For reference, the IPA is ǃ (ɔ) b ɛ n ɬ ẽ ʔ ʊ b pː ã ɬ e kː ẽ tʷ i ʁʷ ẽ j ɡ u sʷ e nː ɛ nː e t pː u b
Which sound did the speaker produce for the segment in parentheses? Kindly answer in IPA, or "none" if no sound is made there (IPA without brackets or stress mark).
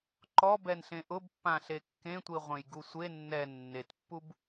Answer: ɔ